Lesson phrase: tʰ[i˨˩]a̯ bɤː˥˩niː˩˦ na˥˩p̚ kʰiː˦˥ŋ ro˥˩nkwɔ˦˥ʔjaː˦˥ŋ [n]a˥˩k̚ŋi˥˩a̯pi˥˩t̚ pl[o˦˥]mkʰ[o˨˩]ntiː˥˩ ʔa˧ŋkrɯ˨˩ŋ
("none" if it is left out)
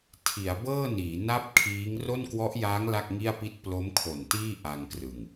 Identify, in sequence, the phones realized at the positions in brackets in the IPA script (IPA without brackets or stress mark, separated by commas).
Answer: i˩˦, l, o˦˥, o˨˩